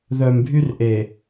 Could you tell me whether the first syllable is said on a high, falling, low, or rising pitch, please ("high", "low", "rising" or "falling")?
low